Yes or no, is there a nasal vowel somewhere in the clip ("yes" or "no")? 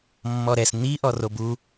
no